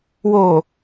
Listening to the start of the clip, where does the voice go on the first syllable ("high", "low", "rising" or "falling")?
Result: low